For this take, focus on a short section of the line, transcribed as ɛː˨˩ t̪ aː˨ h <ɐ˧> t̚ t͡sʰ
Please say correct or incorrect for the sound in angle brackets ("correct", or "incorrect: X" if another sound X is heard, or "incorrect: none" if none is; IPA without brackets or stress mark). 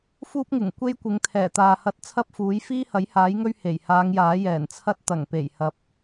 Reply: correct